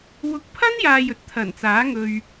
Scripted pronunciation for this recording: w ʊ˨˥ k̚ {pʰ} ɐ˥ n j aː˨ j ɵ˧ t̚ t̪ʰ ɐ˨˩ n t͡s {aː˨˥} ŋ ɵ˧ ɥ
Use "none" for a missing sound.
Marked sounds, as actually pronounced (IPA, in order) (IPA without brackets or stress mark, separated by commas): pʰ, aː˨˥